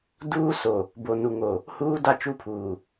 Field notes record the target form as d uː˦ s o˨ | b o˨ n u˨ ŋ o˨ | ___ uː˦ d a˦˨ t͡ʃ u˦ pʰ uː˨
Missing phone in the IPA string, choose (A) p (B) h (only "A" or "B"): B